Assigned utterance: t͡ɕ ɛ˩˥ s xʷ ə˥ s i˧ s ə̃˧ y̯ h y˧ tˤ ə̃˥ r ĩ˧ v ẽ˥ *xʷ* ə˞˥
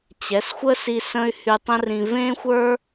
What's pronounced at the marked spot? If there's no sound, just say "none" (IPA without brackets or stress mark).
xʷ